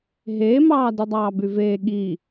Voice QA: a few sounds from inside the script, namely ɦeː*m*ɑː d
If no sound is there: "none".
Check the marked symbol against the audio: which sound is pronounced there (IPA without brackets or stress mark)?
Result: m